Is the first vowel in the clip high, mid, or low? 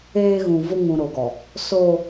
mid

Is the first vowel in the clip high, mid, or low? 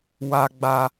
low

